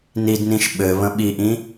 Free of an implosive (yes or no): no